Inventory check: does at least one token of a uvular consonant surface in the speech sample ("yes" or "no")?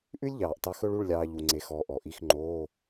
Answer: no